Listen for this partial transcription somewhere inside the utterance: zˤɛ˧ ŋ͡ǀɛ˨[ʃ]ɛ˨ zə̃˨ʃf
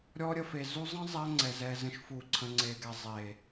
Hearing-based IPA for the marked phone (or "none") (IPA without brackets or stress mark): z